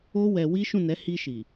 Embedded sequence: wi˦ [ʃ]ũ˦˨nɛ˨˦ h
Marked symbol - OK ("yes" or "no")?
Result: yes